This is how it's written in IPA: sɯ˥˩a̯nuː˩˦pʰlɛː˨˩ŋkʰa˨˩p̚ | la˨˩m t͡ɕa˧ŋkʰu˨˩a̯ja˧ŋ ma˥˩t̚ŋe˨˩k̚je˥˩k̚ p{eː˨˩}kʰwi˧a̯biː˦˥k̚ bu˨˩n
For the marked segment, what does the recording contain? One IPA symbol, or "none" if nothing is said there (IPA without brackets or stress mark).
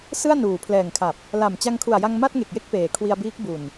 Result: eː˨˩